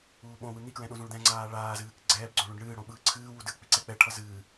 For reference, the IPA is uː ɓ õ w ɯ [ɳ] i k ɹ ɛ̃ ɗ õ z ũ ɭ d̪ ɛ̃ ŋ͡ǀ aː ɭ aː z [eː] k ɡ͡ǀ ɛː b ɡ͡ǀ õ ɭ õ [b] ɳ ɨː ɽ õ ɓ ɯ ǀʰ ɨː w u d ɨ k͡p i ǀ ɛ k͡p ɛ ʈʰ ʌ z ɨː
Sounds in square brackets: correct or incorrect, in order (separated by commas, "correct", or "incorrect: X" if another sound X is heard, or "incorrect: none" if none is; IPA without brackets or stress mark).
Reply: incorrect: n̪, incorrect: ɨː, incorrect: ɖ